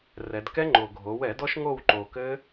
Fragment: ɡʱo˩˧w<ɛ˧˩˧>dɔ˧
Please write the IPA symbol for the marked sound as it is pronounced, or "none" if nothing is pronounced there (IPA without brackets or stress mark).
ɛ˧˩˧